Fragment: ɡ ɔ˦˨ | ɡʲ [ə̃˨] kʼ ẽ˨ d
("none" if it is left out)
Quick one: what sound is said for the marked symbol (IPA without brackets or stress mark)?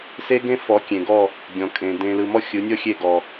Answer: ɔ̃˨